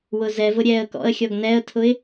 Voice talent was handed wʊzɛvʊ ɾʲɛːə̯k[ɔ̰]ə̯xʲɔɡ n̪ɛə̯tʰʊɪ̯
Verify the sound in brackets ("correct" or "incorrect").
correct